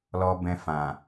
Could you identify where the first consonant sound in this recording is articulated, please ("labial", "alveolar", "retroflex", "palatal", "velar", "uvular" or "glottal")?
alveolar